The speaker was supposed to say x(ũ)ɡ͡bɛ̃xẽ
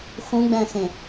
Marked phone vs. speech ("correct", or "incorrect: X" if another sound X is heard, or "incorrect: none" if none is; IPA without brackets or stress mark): correct